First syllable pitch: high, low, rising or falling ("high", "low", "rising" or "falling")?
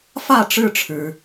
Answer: falling